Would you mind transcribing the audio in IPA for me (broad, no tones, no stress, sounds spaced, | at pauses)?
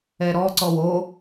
ɛ ɾ ɔ ǀ ɔ w o